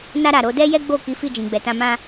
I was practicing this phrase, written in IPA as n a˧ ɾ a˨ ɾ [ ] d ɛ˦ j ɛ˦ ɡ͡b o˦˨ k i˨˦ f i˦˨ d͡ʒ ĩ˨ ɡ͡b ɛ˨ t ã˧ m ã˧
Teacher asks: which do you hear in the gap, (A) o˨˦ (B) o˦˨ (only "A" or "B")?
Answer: A